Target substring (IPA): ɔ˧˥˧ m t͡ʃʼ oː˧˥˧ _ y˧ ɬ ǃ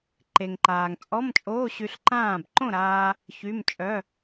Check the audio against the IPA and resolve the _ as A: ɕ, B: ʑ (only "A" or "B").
A